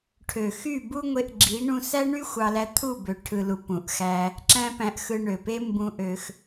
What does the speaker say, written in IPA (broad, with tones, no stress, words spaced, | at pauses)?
ʈʰø˨xy˦˨bu˦ŋʷe˧ʔ ɡ͡ǁi˨˦ɳũ˧ sæ˦ɳy˦ xʷɑ˧læ˧ t̪ʰu˦˨ bø˨ ʈʰɯ˨lu˨ pũ˨ʔxæ˧ | ǁæ̃˦pæ̃˧ʔ xɯ˧ɳø˨pe˦ mbũ˧ʔø˧x